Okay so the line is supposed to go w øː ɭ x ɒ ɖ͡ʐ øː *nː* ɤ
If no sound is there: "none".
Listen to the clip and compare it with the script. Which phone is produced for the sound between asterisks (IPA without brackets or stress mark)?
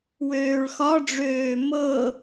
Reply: m